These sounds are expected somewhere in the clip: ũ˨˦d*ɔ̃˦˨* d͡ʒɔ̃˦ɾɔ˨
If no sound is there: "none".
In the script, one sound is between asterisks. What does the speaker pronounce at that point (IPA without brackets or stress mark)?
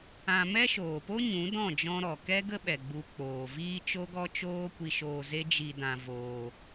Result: ɔ̃˦˨